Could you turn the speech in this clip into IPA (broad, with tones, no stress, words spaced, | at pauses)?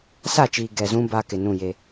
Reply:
sa˦˨t͡ʃiː˨ ɡɛ˨zũ˦ ba˦kɪ˨nũ˦˨je˦